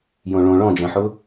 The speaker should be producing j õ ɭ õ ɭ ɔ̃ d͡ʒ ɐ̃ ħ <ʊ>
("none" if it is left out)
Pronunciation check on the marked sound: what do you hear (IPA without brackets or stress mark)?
ʊ